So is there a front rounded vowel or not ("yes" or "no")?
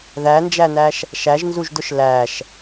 no